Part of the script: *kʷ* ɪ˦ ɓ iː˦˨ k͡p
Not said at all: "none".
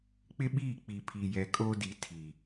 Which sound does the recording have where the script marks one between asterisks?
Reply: k͡p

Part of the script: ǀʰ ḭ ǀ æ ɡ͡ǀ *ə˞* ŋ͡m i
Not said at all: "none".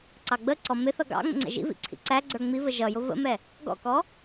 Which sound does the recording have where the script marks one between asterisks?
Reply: ə˞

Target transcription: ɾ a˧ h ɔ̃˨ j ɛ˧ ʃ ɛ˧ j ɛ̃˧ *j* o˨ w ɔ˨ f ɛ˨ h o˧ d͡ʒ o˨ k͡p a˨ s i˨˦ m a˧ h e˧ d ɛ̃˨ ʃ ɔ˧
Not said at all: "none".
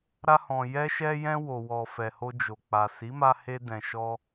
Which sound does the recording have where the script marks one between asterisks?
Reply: w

